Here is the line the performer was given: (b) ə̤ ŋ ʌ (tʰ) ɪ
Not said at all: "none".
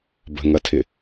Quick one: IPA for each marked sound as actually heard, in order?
b, tʰ

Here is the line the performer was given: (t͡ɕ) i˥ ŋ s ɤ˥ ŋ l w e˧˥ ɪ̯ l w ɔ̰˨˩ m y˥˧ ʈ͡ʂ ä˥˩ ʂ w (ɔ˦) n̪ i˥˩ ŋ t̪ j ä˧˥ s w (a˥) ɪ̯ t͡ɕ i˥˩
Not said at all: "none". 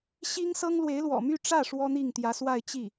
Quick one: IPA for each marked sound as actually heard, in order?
ɕ, ɔ˥, a˥˧

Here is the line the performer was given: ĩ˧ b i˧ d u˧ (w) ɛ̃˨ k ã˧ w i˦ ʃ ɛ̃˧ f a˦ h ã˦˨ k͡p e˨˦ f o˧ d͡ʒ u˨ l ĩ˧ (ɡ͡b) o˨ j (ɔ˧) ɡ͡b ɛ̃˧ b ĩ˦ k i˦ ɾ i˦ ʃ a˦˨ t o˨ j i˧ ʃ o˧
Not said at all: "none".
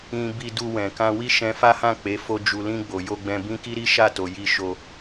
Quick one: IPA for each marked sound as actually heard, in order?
w, ɡ͡b, o˧

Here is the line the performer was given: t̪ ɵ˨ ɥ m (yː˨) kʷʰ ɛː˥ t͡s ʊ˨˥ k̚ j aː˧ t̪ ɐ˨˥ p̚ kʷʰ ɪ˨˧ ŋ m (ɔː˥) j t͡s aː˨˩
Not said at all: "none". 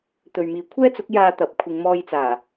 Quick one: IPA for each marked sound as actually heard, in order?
iː˨, ɔː˧

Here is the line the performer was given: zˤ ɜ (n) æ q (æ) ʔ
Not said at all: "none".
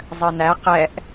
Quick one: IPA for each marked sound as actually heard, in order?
n, ɛ

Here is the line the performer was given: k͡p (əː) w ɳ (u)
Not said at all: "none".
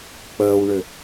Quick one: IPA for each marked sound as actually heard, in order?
əː, ʏ

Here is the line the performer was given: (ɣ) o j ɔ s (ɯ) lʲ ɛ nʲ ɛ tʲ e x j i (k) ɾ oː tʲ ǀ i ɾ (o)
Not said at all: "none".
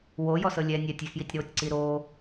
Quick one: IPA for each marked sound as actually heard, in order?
w, ɤ, tʲ, oː

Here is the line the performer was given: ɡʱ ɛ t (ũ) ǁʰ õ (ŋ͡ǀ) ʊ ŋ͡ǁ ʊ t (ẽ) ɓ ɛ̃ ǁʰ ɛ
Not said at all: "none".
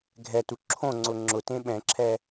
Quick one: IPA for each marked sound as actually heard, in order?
u, ŋ͡ǀ, ẽ

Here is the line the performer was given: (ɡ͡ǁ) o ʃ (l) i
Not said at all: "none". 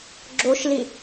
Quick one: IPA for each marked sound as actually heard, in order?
ɡ͡ǁ, l

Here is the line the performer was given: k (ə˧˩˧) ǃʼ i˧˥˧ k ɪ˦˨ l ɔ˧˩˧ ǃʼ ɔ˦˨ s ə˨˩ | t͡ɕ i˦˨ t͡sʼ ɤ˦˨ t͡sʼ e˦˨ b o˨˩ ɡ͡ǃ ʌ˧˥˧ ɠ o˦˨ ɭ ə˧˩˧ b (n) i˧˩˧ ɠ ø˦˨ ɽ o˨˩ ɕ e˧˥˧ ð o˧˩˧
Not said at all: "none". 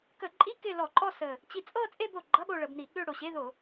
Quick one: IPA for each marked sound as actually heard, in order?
ə˧˩˧, n

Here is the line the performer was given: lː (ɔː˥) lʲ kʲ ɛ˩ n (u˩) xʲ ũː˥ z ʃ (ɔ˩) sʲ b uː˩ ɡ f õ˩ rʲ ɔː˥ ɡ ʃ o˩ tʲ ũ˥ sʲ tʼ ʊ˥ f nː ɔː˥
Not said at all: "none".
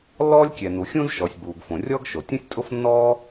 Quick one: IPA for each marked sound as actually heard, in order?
ɔː˥, u˩, ɔ˩

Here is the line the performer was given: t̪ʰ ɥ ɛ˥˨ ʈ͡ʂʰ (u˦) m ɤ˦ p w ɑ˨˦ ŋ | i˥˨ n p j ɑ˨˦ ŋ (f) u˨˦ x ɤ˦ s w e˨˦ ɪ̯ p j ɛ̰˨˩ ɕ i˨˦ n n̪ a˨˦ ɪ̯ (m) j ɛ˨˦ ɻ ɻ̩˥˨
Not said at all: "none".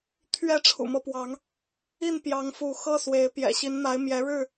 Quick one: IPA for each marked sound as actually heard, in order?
ṵ˨˩, f, m

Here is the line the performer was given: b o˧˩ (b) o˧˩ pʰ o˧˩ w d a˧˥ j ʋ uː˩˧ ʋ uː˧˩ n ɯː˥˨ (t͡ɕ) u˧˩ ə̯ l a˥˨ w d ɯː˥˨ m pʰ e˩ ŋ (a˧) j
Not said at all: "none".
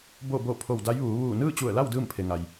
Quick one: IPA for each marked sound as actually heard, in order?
b, t͡ɕ, a˩

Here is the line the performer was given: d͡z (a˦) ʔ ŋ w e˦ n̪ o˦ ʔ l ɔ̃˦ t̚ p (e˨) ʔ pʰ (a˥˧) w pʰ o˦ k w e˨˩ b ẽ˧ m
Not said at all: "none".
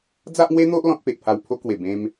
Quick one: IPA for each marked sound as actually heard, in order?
a˦, e˨, a˧

